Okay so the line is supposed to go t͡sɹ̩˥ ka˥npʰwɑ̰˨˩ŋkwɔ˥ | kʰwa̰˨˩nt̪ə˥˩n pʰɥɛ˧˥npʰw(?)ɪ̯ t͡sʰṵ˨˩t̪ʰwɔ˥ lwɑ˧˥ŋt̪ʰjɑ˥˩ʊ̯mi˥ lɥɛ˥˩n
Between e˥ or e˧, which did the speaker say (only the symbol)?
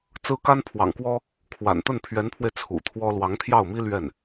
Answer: e˧